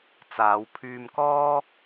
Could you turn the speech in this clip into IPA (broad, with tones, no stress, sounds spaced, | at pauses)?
t͡s aː˨˧ w pʰ yː˧ m k ɔː˥